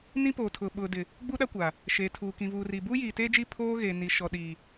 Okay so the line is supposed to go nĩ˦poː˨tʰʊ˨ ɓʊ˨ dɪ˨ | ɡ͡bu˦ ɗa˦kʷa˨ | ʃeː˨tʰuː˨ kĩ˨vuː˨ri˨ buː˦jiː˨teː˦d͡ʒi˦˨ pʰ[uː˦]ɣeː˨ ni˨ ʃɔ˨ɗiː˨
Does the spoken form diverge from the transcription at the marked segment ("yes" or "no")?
yes